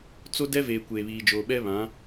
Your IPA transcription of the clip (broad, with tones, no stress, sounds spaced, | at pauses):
t͡s o˦ d ɛ˦ v eː˨ kʷ eː˨ β iː˨ d͡ʒ oː˨ ɓ ɛ˦ β ã˨˦